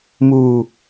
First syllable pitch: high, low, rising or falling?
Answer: low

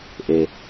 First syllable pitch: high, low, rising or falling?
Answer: low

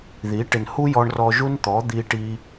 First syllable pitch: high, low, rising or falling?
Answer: rising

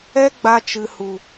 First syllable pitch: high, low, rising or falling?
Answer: high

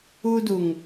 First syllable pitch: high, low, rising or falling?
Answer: high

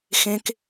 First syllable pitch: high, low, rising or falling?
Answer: high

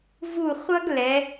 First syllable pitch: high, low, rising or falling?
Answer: falling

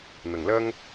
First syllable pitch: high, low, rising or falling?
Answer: low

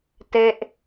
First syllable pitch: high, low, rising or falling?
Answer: falling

